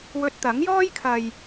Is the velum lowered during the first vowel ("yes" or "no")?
no